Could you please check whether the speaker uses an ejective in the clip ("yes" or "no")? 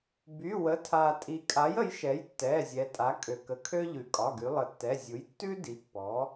yes